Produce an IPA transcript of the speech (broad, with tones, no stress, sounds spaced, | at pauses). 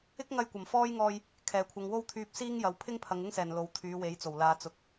ɪ˥ k̚ ŋ ɐ˧ j kʷ ɐ˨˩ m f ɔː˥ j ŋ ɔː˧ j | kʰ ɛː˨˩ kʷʰ ɐ˨ ŋ w o˥ w t̪ʰ yː˧ p̚ s iː˥ ŋ j ɐ˨ w pʰ ɪ˥ ŋ pʰ ɐ˨˧ ŋ ɪ˥ ŋ s ɛː˨˩ n l o˨ w t̪ʰ yː˨˧ w e˨˧ j t͡s o˨˩ w l aː˨ t͡s ʊ˨ k̚